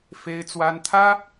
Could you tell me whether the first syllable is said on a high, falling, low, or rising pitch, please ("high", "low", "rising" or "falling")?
high